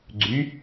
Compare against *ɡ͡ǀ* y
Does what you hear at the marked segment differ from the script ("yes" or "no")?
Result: no